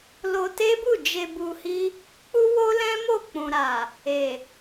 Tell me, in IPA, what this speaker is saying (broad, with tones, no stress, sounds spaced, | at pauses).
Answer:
l o˧ t e˦ b u˦˨ d͡ʒ e˧ b u˧ h i˦ | k͡p u˦ w o˦ l ɛ̃˦ m o˦˨ k͡p ũ˨ ɾ a˨ | e˨